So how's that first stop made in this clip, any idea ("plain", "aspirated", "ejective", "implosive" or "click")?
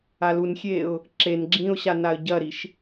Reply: click